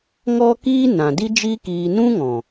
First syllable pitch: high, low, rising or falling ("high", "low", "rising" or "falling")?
high